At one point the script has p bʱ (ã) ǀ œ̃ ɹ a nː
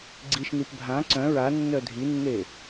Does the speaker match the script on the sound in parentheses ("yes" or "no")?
yes